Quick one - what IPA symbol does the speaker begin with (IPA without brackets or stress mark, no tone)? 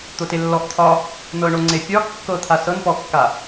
t̪